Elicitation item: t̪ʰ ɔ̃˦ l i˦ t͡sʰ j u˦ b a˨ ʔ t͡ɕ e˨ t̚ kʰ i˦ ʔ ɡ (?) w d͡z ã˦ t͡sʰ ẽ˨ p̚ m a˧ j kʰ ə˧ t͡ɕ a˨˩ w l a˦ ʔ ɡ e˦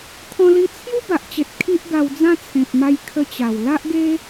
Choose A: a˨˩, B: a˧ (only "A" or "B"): B